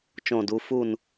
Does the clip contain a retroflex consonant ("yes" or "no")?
no